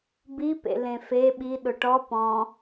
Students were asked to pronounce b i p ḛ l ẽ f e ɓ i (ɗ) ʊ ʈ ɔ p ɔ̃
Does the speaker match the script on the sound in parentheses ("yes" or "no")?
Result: yes